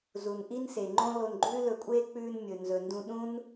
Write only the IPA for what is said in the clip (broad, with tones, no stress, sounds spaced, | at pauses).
z u˨ n ʔ i˦ n s e˨ ŋ͡ǃ õ˦ l o˧ n ɡ͡ǃ ʉː˦ l ɵ˧ kʷʼ eː˦ k͡p ʉː˧ n mʲ ɵ˨ n z ɵ˨ n d ũ˧ ɗ ũ˦ n